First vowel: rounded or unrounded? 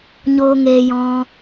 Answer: rounded